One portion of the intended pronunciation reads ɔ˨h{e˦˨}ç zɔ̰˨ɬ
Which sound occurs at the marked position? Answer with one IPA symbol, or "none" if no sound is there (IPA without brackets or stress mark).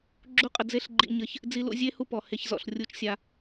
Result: e˧